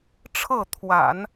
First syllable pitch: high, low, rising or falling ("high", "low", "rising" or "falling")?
falling